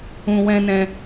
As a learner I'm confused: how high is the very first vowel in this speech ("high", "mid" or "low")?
high